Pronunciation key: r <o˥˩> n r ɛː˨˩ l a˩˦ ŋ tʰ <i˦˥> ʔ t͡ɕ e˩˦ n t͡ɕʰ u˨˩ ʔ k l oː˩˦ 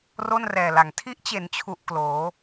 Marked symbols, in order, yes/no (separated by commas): yes, yes